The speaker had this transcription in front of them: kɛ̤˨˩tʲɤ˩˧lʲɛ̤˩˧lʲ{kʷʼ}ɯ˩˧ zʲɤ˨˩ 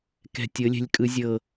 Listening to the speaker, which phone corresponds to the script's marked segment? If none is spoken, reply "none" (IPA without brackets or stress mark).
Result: kʼ